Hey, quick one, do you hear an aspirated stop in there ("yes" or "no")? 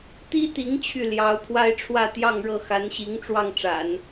yes